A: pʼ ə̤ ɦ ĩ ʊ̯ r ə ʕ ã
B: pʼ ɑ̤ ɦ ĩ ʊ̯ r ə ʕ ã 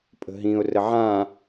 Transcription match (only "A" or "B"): A